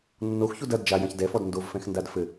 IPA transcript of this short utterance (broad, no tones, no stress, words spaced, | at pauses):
nːoxçud ɐd d͡ʒajɐ̃ç dɛfɔd ndovfɛ̃xndad fɘ